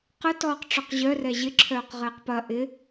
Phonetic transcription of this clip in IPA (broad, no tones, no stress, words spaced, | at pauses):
qə tɔːqʈ͡ʂœqʑœrɛ ʑɪǁʰœːq ʁɪːqpɐ ʔɪ